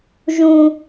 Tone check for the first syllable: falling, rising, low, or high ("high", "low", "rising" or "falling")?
high